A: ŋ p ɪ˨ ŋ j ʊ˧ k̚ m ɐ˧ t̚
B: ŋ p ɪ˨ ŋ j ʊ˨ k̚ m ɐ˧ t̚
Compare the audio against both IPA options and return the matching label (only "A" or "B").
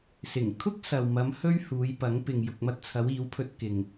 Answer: B